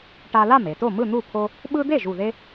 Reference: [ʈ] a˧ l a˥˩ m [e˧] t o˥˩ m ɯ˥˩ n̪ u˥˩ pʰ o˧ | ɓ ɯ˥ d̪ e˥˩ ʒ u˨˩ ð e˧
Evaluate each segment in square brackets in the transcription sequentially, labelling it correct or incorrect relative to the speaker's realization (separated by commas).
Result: correct, incorrect